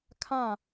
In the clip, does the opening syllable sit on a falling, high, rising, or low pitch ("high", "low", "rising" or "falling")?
falling